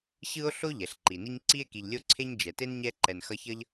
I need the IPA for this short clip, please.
ɕ ɯ˥ o̯ ɬ o˥ ʎ ɛ˩ ɬ ǃ i˩ n i˥ ɲ ǀ i˥ e̯ k i˨ ʎ lʲ o˥ ǀʰ e˥ ɲ d͡ʒ ɛ˩ t e˥ n ɲ ɛ˦ ǃ ɛ˨ n x ʌ˦ ç ʌ˥ ʎ

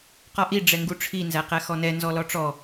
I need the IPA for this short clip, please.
q ɒ ʔ i ɖ͡ʐ ɛ ŋ ɡ u ʈ͡ʂʰ i n z æ q æ x ɔ n ɛ n z ɔ l ɔ ʈ͡ʂ ɔ

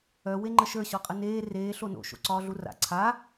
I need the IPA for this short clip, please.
œ w e ŋ͡ǃ ə ʃ ə˞ ɕ ɔ qʼ ə n eː r eː ɬ o n o̰ ʃ o̰ ǀ ɒː ɮ u r a̰ ǀʰ a

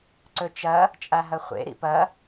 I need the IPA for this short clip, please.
ǀ ɵ t͡ʃ ɐ | t͡ʃʼ a ɦ ɐ χʷ ḛ ɾ ḭ p ɐ

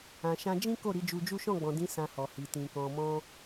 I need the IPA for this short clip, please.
ã˨ ʃ ã˧ d͡ʒ ĩ˦ k o˦˨ ɾ i˨˦ d͡ʒ u˧ d͡ʒ u˦ ʃ ɔ̃˦˨ ɡ͡b ɔ̃˨ d ĩ˨˦ s ã˧ h ɔ˨ h i˨ t ĩ˨ k ɔ̃˨ m ɔ̃˧

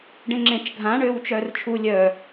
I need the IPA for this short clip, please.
ɖ ẽ ŋ͡ǁ ẽ t͡ʃ ɡʱ ã ɳ øː w t͡ʃ œː r t͡ʃʰ u lʲ œ

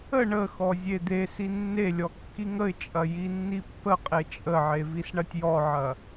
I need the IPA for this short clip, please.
ə ɳ ə x ɔ zʲ e d̪ e s i nː e lʲ ɔ kː i ŋ ə ɪ̯ t͡ʃʼ ɐ j i nː i pː ə qʼ e t͡ʃʼ ə ʕ e v i s ɳ ɐ tʲ j ɔ ʕ ɐ

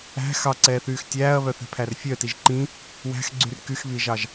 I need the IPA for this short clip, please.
æ̤ x ɑ ǀ ɛː θ yː x tʲ æː ɐ̯ β œ θ ɛ̤ pʰ æ r fʲ œ t i ʒ ǃ ĩ | w æ̤ x ɡ͡ǀ y r k y x β i ʒ ɑ ʒ

